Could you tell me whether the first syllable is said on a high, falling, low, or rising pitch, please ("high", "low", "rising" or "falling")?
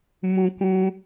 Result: high